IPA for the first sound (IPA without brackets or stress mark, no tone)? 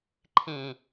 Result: ǃʰ